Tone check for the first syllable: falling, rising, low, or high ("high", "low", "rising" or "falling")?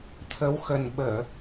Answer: rising